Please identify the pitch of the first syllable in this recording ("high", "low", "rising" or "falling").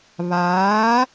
rising